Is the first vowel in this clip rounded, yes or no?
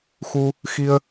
yes